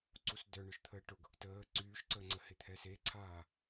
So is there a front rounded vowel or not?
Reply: yes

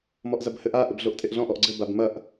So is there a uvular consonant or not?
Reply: no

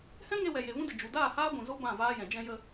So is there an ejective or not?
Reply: no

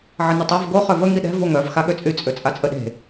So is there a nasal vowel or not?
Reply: no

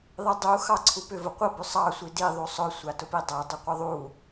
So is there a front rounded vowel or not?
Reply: yes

